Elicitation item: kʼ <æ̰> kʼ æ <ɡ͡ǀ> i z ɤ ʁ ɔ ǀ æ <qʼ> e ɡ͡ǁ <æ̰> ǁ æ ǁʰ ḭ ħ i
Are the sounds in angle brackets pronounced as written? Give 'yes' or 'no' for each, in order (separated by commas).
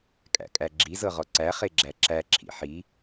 yes, no, no, no